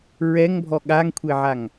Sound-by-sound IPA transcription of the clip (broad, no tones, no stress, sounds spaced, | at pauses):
ɹ ɛ ŋ bʱ ɔ ɠ a ŋ kʷʰ e ʕ a ŋ